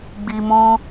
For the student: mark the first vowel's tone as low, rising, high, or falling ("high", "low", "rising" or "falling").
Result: low